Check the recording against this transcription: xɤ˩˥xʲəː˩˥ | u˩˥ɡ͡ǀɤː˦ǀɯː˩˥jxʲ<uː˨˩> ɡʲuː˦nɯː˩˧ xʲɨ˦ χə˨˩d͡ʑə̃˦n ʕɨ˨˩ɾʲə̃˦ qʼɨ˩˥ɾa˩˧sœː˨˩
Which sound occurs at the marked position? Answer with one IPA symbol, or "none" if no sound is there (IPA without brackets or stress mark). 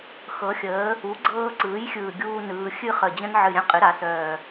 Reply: ɯː˨˩